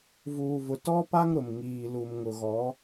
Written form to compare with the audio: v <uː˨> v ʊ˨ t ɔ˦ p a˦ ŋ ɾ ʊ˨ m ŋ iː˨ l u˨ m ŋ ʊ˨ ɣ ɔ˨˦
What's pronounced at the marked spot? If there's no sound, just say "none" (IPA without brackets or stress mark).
uː˨